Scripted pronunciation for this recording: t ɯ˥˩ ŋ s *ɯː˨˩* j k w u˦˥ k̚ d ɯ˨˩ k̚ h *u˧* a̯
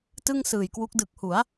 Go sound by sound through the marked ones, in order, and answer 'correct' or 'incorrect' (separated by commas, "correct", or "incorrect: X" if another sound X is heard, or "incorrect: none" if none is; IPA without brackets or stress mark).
correct, incorrect: u˩˦